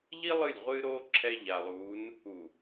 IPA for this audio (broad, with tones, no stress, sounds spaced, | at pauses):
ʎ i˦ lˠ ɨ˦˨ lʲ ʁʷ ɨː˦ ɾ oː˦ ǁʰ ɛ˦ ʎ a˨ lˠ uː˨˦ n | u˨